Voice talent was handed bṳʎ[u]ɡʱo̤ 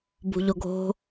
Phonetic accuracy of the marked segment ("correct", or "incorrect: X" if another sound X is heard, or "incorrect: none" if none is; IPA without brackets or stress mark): incorrect: o